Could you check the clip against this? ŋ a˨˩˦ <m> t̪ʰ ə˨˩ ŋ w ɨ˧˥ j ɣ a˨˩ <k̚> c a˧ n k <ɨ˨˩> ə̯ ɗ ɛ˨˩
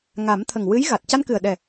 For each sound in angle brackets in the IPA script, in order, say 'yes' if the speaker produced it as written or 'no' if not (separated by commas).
yes, no, yes